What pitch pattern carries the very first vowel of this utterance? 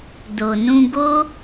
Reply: low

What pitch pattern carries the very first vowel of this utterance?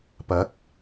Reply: rising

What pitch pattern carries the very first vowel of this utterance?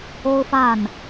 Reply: high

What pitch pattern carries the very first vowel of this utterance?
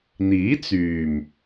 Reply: rising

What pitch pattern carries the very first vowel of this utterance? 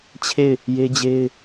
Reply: falling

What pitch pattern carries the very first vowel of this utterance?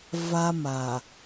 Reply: high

